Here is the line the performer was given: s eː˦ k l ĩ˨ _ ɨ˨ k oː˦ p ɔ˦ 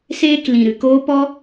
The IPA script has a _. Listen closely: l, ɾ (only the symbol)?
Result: ɾ